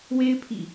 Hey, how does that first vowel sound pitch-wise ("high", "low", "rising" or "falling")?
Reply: high